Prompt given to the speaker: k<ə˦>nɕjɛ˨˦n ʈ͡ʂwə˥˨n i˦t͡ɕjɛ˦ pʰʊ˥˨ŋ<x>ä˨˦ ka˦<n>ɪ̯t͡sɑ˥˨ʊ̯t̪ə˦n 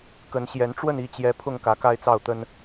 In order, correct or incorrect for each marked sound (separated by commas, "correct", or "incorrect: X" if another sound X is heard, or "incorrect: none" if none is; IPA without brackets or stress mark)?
incorrect: ə˨˦, incorrect: k, incorrect: none